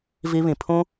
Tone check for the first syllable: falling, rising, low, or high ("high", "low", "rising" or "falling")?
high